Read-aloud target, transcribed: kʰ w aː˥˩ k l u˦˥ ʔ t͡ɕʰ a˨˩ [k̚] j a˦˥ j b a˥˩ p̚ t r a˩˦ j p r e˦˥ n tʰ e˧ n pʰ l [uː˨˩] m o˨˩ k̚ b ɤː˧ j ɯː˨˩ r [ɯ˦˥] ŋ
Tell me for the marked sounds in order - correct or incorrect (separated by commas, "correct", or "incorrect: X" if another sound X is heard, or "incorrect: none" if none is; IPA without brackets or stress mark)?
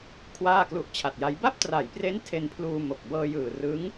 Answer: incorrect: t̚, incorrect: uː˧, correct